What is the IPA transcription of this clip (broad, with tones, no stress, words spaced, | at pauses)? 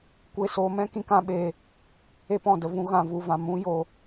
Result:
kʷe˧soː˧mɛ̃˦ kĩ˧kã˧ɓeː˧ | e˧pɔ̃˨də˨vũ˧ ɣã˧vu˧vã˧ mũ˦joː˧